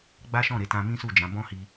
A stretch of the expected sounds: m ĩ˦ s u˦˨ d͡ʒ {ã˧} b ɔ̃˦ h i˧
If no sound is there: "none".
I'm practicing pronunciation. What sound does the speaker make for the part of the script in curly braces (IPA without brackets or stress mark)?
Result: ã˨˦